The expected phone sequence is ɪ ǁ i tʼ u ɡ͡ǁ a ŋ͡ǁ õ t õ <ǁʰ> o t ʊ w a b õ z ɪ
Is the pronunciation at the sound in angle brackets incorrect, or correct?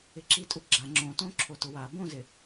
correct